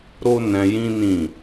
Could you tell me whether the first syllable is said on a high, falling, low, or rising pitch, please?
high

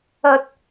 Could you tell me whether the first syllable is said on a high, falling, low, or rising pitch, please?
high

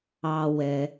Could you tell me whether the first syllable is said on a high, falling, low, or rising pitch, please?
low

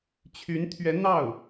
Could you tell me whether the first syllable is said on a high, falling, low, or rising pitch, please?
rising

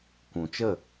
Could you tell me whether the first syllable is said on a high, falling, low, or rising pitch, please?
low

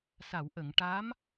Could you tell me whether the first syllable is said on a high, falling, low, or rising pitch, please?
low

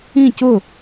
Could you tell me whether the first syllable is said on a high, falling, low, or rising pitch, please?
falling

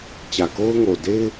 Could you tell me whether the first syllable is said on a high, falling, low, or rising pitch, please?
low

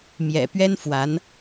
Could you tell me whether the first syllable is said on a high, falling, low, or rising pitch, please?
low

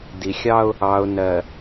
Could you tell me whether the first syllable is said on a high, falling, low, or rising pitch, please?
low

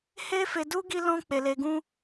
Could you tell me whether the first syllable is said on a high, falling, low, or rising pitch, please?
high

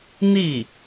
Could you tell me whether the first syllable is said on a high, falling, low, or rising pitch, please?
falling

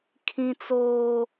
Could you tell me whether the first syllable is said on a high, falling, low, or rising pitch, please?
high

